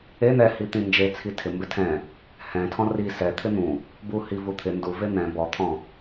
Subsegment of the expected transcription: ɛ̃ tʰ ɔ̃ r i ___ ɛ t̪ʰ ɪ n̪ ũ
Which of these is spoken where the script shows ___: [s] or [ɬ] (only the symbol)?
s